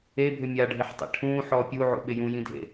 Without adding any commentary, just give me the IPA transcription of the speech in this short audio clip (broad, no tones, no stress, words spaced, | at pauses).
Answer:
ebʱʏ mʲaɖʱɪħtˤḛ ʈʰũːħɔː pʲuʕṵɓɪ jũjĩdʱḛ